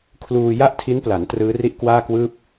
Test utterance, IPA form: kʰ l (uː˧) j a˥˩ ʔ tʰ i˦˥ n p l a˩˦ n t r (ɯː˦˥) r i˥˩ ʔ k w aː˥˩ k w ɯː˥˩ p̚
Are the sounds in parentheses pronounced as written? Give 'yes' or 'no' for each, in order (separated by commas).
yes, yes